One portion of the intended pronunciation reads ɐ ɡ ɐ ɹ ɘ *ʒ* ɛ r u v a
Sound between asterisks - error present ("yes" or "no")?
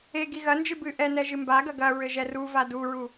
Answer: no